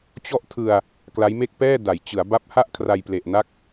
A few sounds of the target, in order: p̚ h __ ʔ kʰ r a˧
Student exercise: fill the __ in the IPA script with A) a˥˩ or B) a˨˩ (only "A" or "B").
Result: A